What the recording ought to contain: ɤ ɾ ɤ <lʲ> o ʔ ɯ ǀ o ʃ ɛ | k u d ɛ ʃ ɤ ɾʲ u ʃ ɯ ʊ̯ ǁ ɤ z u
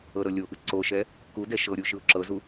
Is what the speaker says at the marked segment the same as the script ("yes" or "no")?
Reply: yes